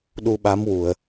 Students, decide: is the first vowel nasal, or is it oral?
oral